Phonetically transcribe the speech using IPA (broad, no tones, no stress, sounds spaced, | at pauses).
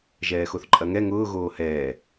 ʒ ɛː x o θ ǃʼ ɐ ŋ ɛ ŋ ʊː ɣ oː h ɛː